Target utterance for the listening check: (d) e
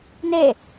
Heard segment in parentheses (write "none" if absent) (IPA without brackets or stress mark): n